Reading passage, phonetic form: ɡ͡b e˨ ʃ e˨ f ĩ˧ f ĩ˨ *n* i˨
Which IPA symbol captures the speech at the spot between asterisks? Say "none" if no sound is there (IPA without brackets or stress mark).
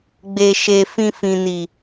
n